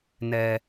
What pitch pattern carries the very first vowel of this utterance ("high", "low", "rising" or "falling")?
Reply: low